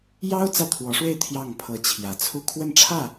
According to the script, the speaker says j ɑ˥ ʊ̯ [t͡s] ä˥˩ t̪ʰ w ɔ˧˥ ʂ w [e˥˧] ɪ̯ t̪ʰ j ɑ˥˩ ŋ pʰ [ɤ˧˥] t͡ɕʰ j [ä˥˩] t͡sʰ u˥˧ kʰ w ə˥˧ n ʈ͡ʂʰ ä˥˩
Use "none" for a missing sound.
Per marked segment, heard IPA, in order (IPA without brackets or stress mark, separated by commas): t͡s, e˥˧, ɤ˧˥, ä˨˩